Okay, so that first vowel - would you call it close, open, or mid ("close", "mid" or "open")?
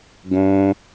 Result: mid